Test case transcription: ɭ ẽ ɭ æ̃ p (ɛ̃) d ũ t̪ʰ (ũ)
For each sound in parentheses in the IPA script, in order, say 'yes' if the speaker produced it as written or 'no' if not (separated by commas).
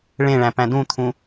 no, yes